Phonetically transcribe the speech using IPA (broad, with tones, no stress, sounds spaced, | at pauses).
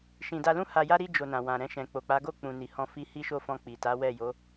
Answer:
ʃ ĩ˨ d a˧ l ũ˦ h a˧ j a˦ ɾ i˦ d͡ʒ o˧ n ã˨ w ã˨ ɾ ɛ̃˧ ʃ ɛ̃˨ k͡p o˨ k͡p a˨˦ ɡ o˦˨ k͡p ũ˨ n i˨ h ɔ̃˧ f i˧ h i˦ ʃ o˦˨ f ɔ̃˧ k͡p i˨ t a˨˦ w ɛ˦˨ j o˨˦